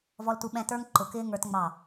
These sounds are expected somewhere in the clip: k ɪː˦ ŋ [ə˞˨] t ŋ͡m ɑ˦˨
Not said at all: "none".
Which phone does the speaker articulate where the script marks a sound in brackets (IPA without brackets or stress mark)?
ə˞˦